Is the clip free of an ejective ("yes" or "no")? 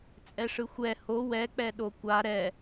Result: no